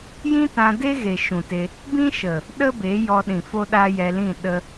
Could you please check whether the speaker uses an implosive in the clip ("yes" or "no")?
yes